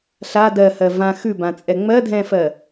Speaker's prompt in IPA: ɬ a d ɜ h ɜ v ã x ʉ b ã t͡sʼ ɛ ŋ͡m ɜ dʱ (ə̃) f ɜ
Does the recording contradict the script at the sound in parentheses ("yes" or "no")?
yes